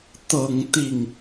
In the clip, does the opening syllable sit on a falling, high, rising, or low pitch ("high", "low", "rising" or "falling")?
low